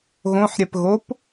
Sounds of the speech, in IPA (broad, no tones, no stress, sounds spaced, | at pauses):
ɣ õ ħ ɾʲ ɛ p ɣ o p